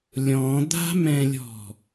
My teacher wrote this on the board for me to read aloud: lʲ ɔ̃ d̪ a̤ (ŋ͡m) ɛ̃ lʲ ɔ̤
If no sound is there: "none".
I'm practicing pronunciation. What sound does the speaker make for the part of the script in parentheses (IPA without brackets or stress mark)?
m